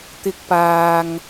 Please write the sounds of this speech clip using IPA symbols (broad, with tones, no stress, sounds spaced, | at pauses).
t̪ ɪ˧ k̚ p aː˨ ŋ